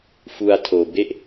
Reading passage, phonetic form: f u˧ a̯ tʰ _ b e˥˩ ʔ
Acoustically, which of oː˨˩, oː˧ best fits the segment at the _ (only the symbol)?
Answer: oː˧